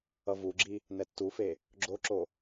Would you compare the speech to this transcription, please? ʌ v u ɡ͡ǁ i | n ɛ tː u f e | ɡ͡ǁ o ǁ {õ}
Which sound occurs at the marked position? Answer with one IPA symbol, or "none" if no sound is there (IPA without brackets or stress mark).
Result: o